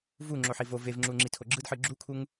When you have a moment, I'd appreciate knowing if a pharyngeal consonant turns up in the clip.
yes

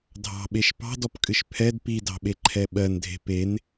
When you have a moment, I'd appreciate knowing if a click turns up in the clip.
yes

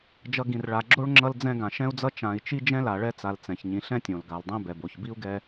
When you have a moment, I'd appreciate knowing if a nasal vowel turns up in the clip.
yes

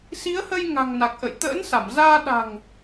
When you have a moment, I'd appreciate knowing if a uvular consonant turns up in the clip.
no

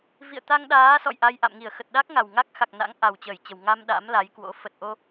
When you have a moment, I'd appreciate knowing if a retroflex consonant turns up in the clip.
no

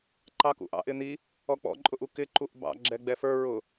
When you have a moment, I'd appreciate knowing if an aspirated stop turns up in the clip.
no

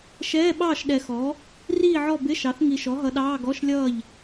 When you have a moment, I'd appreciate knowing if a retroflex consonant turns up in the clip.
no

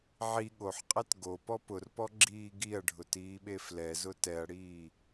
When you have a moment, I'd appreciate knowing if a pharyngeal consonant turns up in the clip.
yes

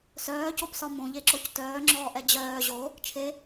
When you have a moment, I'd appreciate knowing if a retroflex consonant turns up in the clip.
no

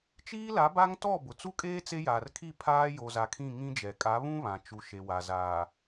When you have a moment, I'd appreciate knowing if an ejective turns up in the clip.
yes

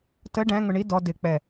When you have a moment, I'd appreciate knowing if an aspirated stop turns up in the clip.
no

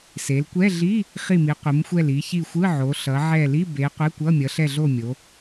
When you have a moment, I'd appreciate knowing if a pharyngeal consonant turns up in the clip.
yes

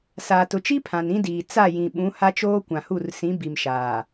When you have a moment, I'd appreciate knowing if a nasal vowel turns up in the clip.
yes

